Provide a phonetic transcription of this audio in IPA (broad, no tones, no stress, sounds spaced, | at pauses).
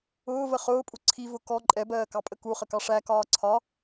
ʊː v ə χ ʊː pʼ u ǀʰ i v ʊ k ɔ ǃʼ ɛ b ɜː k ɑ pʼ ə k u χ ə k ɑ ʂ æ k ɒː ǀʰ ɒ